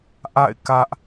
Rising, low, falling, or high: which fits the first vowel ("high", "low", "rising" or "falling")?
falling